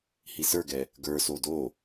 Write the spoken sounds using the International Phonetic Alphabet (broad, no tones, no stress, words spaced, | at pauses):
hisə˞ɡɛ | ɡə˞so do